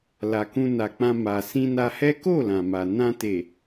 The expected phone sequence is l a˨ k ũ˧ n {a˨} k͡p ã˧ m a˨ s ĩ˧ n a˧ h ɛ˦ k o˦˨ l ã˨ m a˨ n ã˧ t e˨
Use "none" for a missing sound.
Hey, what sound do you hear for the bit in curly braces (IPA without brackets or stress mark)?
a˨